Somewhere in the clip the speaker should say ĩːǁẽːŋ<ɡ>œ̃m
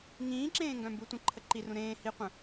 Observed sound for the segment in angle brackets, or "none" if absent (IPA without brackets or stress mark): ɡ